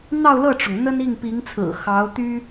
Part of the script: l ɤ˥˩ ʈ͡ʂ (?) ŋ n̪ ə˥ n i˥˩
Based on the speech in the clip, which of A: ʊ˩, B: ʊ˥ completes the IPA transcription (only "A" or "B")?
A